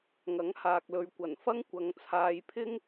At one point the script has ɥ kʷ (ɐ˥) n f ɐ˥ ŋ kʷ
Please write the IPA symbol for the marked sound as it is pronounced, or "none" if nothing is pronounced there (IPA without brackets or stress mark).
ɐ˨˩